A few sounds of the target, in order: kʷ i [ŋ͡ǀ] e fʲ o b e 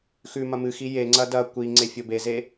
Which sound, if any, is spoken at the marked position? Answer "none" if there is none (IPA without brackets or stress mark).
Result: ŋ͡ǀ